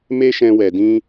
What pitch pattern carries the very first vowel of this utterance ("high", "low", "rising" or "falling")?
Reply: high